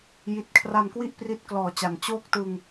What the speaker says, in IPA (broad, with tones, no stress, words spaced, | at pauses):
ji˨˩t̚kʰra˧nkwi˥˩ʔ pri˦˥t̚klɔː˨˩t͡ɕa˩˦n t͡ɕoː˥˩k̚tɯ˧ŋ